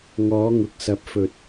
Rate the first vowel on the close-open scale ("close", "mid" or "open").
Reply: mid